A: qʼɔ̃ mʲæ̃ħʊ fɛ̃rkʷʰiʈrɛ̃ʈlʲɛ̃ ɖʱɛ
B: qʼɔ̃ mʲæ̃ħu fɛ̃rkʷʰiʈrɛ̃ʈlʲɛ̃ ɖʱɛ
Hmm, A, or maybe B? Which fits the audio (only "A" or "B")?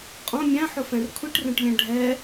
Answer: A